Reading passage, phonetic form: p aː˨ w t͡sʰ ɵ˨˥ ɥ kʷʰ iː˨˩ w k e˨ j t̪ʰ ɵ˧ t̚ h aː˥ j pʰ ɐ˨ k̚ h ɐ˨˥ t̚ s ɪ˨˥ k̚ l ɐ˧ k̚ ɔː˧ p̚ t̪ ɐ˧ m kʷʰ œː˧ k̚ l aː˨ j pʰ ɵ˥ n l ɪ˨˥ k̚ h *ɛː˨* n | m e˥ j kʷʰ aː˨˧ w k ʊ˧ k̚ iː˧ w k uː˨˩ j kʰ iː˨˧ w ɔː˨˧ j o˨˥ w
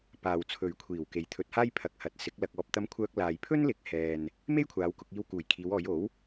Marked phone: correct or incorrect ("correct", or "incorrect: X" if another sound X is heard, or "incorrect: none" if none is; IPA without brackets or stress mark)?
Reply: correct